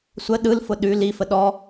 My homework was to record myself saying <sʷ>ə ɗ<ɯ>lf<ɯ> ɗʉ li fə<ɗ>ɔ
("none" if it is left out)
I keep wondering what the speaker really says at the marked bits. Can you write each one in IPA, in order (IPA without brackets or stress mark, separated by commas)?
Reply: sʷ, ɯ, ʊ, ɗ